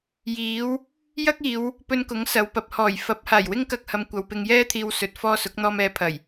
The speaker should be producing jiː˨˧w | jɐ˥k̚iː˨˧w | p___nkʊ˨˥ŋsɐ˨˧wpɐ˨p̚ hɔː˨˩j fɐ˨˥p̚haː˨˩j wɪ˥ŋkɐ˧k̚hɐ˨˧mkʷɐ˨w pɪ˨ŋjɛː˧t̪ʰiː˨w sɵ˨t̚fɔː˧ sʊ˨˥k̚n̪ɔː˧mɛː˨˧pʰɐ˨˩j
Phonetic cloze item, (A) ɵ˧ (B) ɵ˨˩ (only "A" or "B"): A